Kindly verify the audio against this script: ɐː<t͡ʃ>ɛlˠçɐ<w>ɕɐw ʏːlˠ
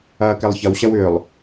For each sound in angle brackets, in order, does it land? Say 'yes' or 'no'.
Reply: no, yes

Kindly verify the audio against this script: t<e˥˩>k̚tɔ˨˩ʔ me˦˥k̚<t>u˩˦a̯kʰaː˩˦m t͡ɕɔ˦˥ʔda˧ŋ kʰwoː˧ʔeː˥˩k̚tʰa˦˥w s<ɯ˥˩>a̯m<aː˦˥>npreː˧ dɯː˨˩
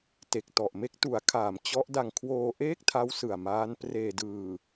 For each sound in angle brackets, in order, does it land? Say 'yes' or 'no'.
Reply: no, yes, no, yes

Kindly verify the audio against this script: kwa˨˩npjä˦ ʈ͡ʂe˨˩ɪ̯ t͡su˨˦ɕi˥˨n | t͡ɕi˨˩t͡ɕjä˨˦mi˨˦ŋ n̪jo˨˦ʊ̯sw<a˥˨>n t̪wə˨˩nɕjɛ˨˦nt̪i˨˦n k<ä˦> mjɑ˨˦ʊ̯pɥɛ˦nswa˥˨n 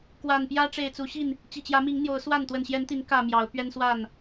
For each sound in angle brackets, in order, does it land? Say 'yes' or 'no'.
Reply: yes, no

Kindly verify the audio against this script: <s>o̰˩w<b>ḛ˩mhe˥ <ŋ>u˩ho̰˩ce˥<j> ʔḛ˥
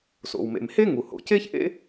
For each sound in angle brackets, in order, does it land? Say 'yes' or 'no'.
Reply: yes, no, yes, no

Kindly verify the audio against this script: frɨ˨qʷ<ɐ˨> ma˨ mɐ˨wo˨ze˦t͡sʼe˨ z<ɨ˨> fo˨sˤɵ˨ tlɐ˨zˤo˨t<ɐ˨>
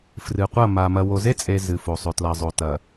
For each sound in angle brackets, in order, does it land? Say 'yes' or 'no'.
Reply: no, yes, yes

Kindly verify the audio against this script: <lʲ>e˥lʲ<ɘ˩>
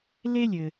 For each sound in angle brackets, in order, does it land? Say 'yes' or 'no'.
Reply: no, yes

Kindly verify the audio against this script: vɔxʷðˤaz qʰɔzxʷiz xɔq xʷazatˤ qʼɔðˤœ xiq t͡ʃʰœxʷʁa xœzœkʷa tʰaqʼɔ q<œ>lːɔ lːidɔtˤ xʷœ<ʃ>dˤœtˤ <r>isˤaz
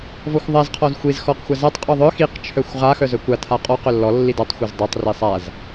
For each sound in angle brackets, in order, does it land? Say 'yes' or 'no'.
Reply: yes, no, yes

